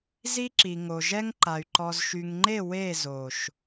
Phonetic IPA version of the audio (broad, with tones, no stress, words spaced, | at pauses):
zi˦ ǁi˨ŋo˨ ʒɛ˦ŋǃa˨y̯ ǃɔ˨zʃy˨ŋŋ͡ǃe˦˨ we˦˨zo˨ʃ